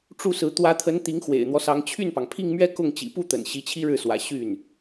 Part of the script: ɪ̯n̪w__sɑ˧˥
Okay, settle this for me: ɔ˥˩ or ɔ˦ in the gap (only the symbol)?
ɔ˦